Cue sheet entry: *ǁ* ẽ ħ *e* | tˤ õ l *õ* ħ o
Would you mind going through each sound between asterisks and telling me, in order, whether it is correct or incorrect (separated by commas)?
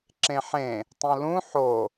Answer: correct, incorrect, incorrect